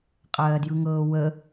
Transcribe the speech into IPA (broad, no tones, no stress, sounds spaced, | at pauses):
qʼ ɜː d j ɯ ŋ ɤː w ə